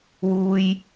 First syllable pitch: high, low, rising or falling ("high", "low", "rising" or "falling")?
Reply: high